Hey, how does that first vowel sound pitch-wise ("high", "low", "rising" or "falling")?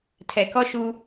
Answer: low